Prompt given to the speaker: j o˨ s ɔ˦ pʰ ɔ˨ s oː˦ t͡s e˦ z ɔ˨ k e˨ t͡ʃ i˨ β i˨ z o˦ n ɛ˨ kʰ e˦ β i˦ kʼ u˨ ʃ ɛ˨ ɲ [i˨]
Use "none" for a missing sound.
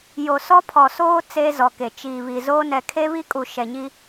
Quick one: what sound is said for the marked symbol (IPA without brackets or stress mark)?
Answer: i˦